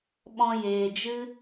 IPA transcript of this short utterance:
ɓ ɔ̃˧ j eː˨ d͡ʒ ɨ˦

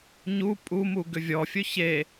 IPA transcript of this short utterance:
ɲ u pʼ u m u ɡ ʏ vʲ ɔ fʲ ɵ ç e

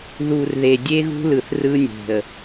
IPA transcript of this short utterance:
ð u˨ r ð e˨ dʲ e˦ ɣ ṳ˦ l ɯ˨ θ r ɯ˦ nʲ e̤˨ ə̯

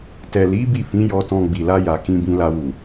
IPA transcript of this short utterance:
t ɛ˨ l i˨˦ b i˦˨ f ĩ˨˦ j ɔ˧ t ɔ̃˧ ɡ͡b i˨ l a˧ j a˨ k ĩ˧ b ĩ˧ l a˧ w u˨

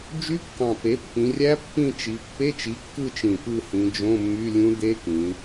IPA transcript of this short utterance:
d͡ʒ y˧˥ kː ɑ̃˨˩ p e˩˥ pː ĩ˩˧ rʲ æ˧˥ pː ĩ˦˨ t͡ʃ i˩˧ pː e˧˥˧ t͡ʃ i˩˥ kː ɯ˦˨ t͡ʃ ĩ˨˩ p ɯ˦˨ h ĩ˩˧ d͡ʒ õ˧˥˧ mː y˧˥˧ lʲ ũ˧˥ d e˧˥ k ĩ˩˧

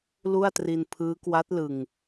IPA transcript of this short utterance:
l u˥˩ a̯ t r i˧ n pʰ ɯː˦˥ k w a˦˥ t̚ l ɯ˨˩ ŋ

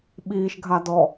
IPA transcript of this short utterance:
ɓ iː ʃ ɡʱ a d ɔ

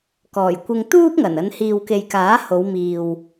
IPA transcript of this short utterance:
k ɔː˨˩ j kʷ ɪ˧ ŋ t̪ uː˥ p̚ ŋ ɐ˨˩ n ɐ˨˧ n h iː˨ w k e˨ j k aː˨˥ h o˨˧ w m iː˨ w

